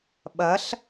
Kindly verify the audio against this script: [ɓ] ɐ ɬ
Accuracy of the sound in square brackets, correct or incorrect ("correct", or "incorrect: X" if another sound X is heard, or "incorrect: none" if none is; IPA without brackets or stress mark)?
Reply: correct